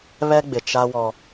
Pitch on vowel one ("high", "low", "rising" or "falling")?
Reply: high